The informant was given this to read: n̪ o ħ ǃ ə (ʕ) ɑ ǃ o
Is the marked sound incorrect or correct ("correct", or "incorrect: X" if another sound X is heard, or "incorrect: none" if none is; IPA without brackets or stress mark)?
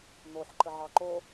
correct